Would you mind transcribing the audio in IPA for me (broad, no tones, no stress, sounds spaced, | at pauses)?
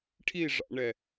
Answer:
ʈʰ i ʐ ɑ̰ ɳ ɛ